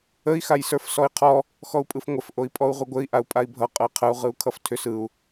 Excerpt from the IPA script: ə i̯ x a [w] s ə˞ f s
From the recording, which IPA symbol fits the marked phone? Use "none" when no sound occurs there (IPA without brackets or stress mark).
j